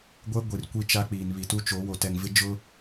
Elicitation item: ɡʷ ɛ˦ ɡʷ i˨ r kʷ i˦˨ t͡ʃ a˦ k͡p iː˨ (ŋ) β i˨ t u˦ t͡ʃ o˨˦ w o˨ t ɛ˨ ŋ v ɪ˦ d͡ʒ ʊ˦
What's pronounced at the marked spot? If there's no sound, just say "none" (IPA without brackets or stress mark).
n